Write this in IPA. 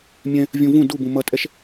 mʲɛ̃ | vʲũvũ dubũ mʌtʼɛʃ

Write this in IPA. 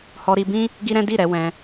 hɔ˧ɾi˧bĩ˦ | ɡi˦ɾɛ̃˦ di˦˨ɾɛ˧ wɛ̃˧

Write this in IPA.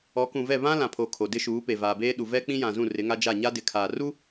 ɔ˨˦kũ˨vɛ˦˨ βã˦lã˨pʰo˨ kʰo˨dɪ˦ʃuː˨˦pe˨ vaː˨beː˦ɗu˨ vɛ˦k͡pĩ˦jã˨zũ˦˨ rɪ˨˦ŋa˦d͡ʒa˦˨ ɲa˦dɪ˨kʰaː˨ ru˦

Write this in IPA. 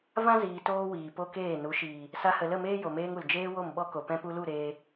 vã˦ziː˨ toː˦wiː˨po˦keː˦˨ nu˨˦ʃiː˨ | sa˧hə˨lə˦˨meː˦ jo˨meː˧ŋ u˨l d͡ʒeː˧ wo˦˨mɓɔ˦ko˨ pɛ̃˧pu˧lu˦˨ ɾeː˧

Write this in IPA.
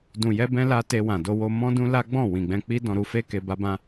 dũ˨jɛ˧bɛ̃˧ la˧ te˧wã˨do˧wo˧ mɔ̃˧ dũ˦la˦ɡ͡bɔ̃˦˨ wĩ˨ɡ͡bɛ̃˧k͡pi˦ dɔ̃˧ɾu˧fe˦ke˧ ba˦bã˦

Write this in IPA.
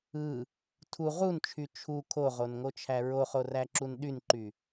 ɯ | tʰu ʁunt͡ʃʰy t͡ʃʰu kʰoʁonŋot͡ʃʰæ ɹoχoræǁun ɗynǃy

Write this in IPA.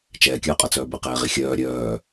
t͡ʃɛːkʲœːqʼʌt͡sœː bɘqɛːʁi xʲœː ɾʲœː

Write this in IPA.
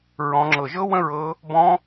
ɹɔ̃˨˦ŋ͡ǁɤ˧˩ ʒɤ˦˥wə̃˦˥ ɹɤ˦˥ | bɔ̃˦˥

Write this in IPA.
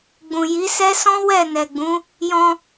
ɡ͡bũ˨ji˨˦sɛ˦ sɔ̃˦ wɛ˦˨ nɛ˨ɡ͡bũ˨˦ | jɔ̃˧

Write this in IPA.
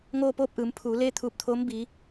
ŋoː˥˨poː˥˨p̚ʔɯː˩˧m pʰuː˩˧leː˥˨t̪ʰuː˧˩p̚t̪ʰoː˧˥m bi˩˧

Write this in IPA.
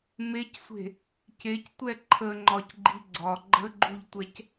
mecsʷe̤ | cectʷɛ ǃʰəŋ͡ǃɒcɡ͡ǃi ɡ͡ǀɒ ɡ͡ǃəɡ͡ǃuʎtʷɛc

